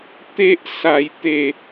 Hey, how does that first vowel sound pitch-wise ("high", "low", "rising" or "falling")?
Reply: high